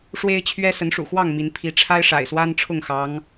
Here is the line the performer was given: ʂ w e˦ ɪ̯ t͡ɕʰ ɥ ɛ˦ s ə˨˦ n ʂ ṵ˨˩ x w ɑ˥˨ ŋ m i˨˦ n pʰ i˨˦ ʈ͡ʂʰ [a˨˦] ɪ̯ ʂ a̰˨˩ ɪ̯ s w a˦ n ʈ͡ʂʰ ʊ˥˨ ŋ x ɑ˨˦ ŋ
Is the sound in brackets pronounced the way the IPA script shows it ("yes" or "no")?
no